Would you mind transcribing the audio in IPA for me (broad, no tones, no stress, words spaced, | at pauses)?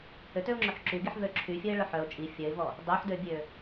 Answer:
høtøʊ̯ŋ͡ǁøħ ǁyɡiħvø ǁʰyfʲœɪ̯ɭœħ œʊ̯ t͡ʃʼi fʲœɪ̯vɔ | dˤøħdøbʲø